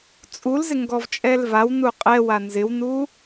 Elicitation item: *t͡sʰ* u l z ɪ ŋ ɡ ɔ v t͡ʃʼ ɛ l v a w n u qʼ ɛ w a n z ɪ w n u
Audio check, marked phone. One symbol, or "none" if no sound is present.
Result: t͡sʼ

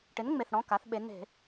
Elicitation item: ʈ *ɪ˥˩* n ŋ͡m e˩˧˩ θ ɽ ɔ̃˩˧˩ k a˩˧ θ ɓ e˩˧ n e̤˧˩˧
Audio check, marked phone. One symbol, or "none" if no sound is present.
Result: ɪ˩˥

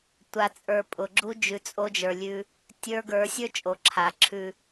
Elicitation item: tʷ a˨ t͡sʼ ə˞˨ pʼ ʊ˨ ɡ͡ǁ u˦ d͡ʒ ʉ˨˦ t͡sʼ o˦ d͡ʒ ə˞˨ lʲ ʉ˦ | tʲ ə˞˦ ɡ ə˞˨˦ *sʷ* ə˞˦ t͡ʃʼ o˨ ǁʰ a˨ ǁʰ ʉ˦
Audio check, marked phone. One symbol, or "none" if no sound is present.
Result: sʲ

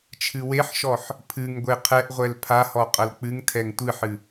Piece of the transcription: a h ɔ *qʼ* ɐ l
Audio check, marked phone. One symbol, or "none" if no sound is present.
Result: qʼ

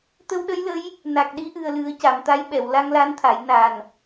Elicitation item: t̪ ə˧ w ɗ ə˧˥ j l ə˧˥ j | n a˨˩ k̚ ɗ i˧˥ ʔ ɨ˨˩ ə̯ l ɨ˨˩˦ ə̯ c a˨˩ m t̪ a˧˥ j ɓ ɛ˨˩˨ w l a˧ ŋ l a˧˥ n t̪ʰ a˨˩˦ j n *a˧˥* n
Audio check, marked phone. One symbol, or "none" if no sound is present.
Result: a˨˩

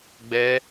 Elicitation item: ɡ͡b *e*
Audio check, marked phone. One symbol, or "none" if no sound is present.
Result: ɛ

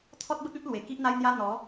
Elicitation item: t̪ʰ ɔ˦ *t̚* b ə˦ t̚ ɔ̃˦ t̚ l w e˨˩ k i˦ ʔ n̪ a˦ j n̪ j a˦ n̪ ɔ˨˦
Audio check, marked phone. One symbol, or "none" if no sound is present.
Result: t̚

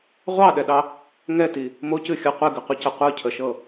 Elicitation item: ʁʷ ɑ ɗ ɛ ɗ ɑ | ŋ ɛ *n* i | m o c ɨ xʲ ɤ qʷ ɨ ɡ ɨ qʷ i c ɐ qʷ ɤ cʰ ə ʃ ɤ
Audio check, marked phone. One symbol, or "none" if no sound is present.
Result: t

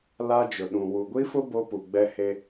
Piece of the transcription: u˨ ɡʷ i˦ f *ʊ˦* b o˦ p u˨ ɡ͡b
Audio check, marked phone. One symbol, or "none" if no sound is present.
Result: ʊ˦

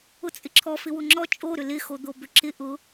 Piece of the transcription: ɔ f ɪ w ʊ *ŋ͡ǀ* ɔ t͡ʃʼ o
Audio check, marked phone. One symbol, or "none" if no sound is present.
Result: ŋ͡ǁ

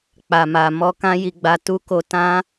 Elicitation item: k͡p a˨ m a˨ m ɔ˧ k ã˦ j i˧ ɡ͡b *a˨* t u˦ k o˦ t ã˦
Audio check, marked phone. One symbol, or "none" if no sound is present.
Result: a˧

